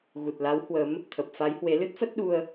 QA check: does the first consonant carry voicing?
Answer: yes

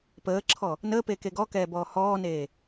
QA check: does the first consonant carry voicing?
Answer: no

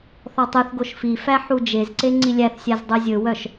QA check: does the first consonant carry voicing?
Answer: no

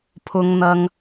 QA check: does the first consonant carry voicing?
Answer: no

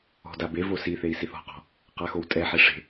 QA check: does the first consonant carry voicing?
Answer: yes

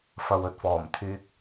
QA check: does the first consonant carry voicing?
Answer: no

